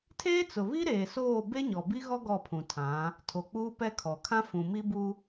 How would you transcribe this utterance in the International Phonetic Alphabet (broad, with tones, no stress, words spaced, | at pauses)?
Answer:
tʰeː˦t͡sʊ˨βi˦ ɾeː˨soː˦˨ be˦ɲɔ˨bi˦ɣɔ˦ ɡɔ˦˨pʰũ˨tʰã˨˦ | tʰo˨k͡puː˦ pɛ˦kʰɔ˨ kʰã˦fũ˨ mi˦bu˦